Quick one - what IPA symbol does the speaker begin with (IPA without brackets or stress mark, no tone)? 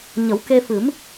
ɲ